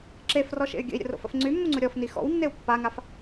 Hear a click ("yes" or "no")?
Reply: yes